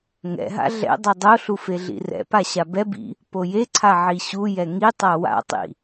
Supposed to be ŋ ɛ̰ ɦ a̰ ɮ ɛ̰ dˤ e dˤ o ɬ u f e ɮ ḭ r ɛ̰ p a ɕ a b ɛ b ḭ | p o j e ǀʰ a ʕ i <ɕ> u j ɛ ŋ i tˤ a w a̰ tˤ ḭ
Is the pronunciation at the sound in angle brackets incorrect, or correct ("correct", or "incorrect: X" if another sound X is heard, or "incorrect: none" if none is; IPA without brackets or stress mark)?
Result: correct